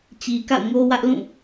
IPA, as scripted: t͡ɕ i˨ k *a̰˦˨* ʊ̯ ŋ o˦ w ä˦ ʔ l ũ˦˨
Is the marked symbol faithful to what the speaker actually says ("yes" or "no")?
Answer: yes